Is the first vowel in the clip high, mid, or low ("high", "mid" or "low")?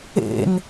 mid